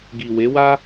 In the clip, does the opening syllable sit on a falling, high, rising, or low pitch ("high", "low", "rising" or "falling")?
low